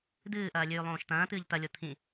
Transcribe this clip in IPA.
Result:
d̪ ɨː ʔ ɐː lʲ ʉː lˠ õː ʃ t̪ ɐ̃ː t̪ ɨː ʎ t̪ ɐ lʲ o t̪ʰ ĩ

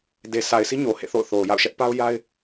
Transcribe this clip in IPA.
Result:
d e˨ sʰ a˨ ɪ̯ s i˦ ɲ o˨ h ḛ˦˨ θ o̰˦˨ ʊ̯ θ o˨ ʊ̯ j a̰˦˨ ʊ̯ ʃ ɛ˦ ʔ p a˦ ʊ̯ j a˦ ɪ̯

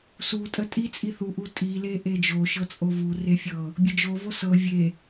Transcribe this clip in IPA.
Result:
s u tʼ ə tʼ i t͡sʼ i θ u ʔ u tʼ i l e ʔ e d͡ʒ o ʃ ɤ t͡sʼ o v u r e fʲ ɤ | bʲ ə d͡ʒ o v o s ɤ vʲ e

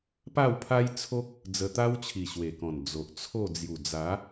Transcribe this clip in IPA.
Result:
p a˥˧ w pʰ a˦ j t͡sʰ o˦ k̚ | d͡z ə˧ t̪ a˦ w t͡ɕʰ i˨˩ ɕ w e˨˩ k ɔ̃˨˩ n d͡z o˨ ʔ t͡sʰ o˥˧ d͡z j u˨˩ d͡z a˨˦

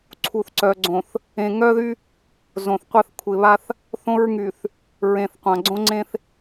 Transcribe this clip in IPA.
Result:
ǀʰ u˨ θ ǀ œ˨ ɡ͡ǀ õ˨ θ | ẽ˨ ŋ œ˦ ð y˦ | z õ˨ θ qʷ a˦ θ kʷʰ ɪ˨ β a˦ θ | θ õ˦ ɹ ŋ y˨ θ | ɹ ẽ˨ θ qʷ ã˨ ɡ͡ǀ õ˦ ŋ͡ǀ ẽ˦ θ

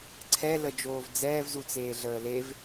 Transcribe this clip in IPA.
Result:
ǀʰ ɛ l ə d͡ʒ oː v d͡z ɛː v z u t͡s eː ɮ əː l e v

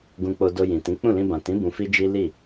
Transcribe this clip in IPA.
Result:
ɡ ũ˧ k͡p o˧ d o˧ j ĩ˨ t ĩ˨˦ k͡p ũ˦˨ l ĩ˧ b ã˨ t ĩ˨˦ b ũ˧ f i˦ d͡ʒ i˦ l i˦˨

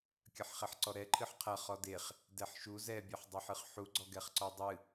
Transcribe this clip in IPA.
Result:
kʲ ɐ ħ χ ɛ ħ ǀ ɔ ɾ ɛ ǃʰ ɨ ħ qʰ ɐ χ ɔ d e χ | d ɛ ħ ʃ u z ɛ bʲ ɛ ħ dˤ e ħ ɨ χ ħ u ɡ͡ǀ ɔ ɡ ɛ χ ǀ ɔ dˤ ɨ

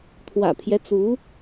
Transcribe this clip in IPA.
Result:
t̪ʰ w ä̰˨˩ pʰ j ɛ˦ t͡s u˧˥

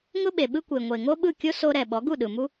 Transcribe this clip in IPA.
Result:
ŋ ʊ˦ ɓ e˨ ɓ ɯ˦ kʷ e˨ ŋʷ e˨ ŋ o˦ ɓ ɯ˦˨ kʲ o˦ s o˧ ɾ ɛ˨ ɓ ɔ˨˦ ɡ u˦˨ ɗ ɯ˨ m u˦

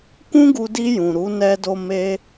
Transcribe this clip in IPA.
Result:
k ũ˦ ɡ u˧ d i˧ j ũ˨ ɾ u˨˦ n ɛ˧ d o˧ m e˦

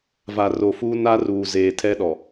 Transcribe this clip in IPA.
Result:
v a˨ r o˨ f uː˦ n a˦ r uː˨ z eː˨ tʰ ɛ˦ ɗ ɔ˨

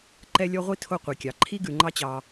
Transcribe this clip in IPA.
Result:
ǃ ɛ˦ lʲ ɔ˦ ʁʷ i˥ tʰ o˦ qʷ i˩ kʲ ɑ˩ ǃʰ i˥ ɡ ʉ˨ ŋ͡ǃ ɑ˦ t͡ɕ ɑ˨

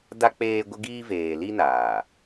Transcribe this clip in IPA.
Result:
d a˦ k͡p eː˦ ɡʷ ɪ˦ ɡ iː˦ v eː˨ l i˦ n aː˨

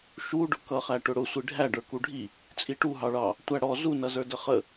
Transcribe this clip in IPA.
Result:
ʃ u ɖ ʊ k ʌ χ æ ʈ ʊ ɽ ʊ sʷ i ɖʱ æ ɖ ə˞ k u ɖʱ i | t͡sʼ i ʈ u ɦ ɑ ɭ ɑ | tʷ æ ɽ ɔ z u n ʌ z ə˞ d ə χ ə

